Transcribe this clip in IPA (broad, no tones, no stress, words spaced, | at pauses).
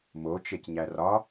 mot͡ʃecɲæ rɒ